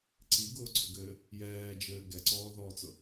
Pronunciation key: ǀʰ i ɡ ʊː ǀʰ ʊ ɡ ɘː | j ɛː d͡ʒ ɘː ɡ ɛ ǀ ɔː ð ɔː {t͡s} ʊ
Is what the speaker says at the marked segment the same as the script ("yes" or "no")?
yes